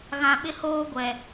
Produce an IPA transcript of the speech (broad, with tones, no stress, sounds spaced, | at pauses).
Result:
ɣ ã˨ ɓ ɪ˦ h oː˦ ɡʷ ɛ˨